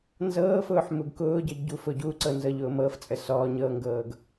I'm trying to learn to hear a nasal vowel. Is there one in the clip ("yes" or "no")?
no